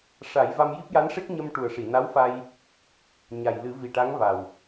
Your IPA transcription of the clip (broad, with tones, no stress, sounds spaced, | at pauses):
ʂ a˨˩˦ j v a˧ m j i˦˥ p̚ j a˧˥ n ʂ e˦˥ k̚ ɲ ə˧ m ʈ u˨˩ ə̯ ʂ i˨˩˨ n a˧˥ w f a˧ j | ɲ a˨˩ j l ɨ˨˩˦ v i˨˩ ʈ a˧˥ ŋ v a˨˩ w